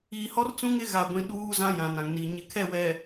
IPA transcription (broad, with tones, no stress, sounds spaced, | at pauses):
iː˨ h ɔ˦ r t͡s ũ˦ ŋ ɪ˦ ɣ a˨ ɡʷ ĩ˨ ɗ uː˦ z ã˦ j ã˨ n ã˨ ŋ n i˨ ɲ ɪ˨ kʰ ɛ˦˨ w ɛ˨